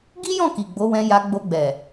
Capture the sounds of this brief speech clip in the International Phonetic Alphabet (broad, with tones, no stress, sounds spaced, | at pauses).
ɡ i˦ j ɔ̃˦˨ k i˨ ɡ͡b o˨˦ w ɛ̃˧ j a˧ ɡ͡b o˧ ɡ͡b ɛ˨